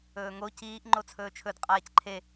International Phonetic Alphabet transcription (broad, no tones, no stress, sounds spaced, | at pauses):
ɵː ŋ o c iː ʔ ŋ͡ǃ o t͡sʰ ɵː t͡ʃʰ ɵ d qʼ aː c ǃʰ e